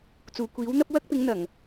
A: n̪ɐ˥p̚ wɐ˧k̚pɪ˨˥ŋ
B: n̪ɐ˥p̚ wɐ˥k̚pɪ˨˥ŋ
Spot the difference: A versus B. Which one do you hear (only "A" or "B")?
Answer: B